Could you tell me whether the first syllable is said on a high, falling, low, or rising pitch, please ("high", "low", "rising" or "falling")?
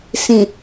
low